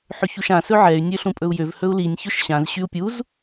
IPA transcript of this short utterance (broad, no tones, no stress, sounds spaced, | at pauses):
ħ ø ç u ʃ ã s ɵ ʕ ɛ y̯ nʲ ø ɬ ũ pʼ ɵ u̯ j ø v h ɵ u̯ l i nʲ ç ɵ ʃ ɕ ã z ɕ y u̯ pʲ u z